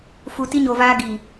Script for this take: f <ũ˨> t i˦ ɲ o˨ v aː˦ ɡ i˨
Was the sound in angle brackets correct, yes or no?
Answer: no